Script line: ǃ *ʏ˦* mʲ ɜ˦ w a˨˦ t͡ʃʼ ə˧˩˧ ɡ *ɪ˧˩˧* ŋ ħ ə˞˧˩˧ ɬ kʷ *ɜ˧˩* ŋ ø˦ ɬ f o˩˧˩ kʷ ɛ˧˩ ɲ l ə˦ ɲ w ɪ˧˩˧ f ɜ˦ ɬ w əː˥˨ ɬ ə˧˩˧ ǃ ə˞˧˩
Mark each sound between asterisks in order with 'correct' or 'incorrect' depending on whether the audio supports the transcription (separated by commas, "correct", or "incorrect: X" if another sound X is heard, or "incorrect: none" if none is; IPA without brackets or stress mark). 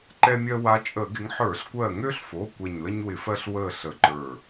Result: incorrect: ɛ˦, incorrect: ɪ˨˦, correct